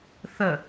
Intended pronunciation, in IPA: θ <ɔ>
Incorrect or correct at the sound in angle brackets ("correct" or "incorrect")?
incorrect